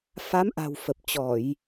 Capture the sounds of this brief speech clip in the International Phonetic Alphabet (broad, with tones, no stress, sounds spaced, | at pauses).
f a˨˦ m ʔ a̤˨˩ w f ə˨˩ p̚ t͡ɕ ɔ˧˩˨ j